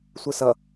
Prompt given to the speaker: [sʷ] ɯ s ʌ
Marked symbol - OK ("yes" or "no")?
yes